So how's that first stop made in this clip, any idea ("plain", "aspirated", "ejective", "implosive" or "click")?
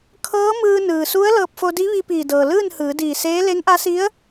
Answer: aspirated